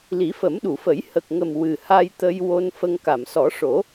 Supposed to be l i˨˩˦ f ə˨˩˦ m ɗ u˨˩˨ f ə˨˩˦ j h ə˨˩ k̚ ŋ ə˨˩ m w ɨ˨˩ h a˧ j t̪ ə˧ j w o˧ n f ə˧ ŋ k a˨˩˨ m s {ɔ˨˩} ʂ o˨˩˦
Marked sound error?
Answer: yes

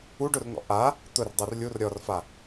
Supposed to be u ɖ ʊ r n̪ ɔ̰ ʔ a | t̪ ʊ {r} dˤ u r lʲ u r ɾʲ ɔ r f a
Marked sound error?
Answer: no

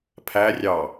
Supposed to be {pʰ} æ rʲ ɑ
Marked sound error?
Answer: no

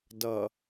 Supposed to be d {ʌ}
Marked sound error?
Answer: no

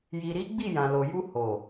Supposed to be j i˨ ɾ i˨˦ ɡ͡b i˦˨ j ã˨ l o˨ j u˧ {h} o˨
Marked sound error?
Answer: no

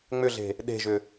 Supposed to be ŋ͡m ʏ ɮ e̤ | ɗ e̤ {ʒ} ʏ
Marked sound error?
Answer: no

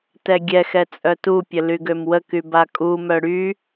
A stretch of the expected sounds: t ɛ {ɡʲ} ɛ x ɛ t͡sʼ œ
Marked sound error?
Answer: no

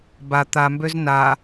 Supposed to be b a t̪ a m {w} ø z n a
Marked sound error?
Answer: yes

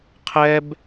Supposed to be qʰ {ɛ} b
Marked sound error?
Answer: no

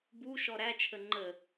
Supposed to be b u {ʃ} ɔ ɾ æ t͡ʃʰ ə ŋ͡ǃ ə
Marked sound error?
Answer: no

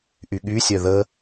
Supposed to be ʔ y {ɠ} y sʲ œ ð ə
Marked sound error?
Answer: no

